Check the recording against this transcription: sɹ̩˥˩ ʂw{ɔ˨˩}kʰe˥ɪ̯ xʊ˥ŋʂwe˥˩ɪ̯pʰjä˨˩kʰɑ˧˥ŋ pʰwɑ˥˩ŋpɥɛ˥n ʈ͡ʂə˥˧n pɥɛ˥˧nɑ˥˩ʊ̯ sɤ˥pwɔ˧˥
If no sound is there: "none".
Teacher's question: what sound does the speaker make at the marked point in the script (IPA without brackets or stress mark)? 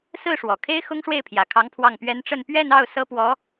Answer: ɔ˨˩